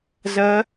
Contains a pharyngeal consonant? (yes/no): no